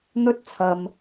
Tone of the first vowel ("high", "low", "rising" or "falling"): high